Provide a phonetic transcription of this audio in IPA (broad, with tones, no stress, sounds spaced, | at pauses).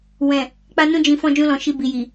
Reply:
w ɛ̃˨ | k͡p a˧ n ũ˧ d͡ʒ ĩ˨ f ɔ̃˧ d͡ʒ ũ˧ l ɔ̃˨ ʃ i˧ b i˨ j i˨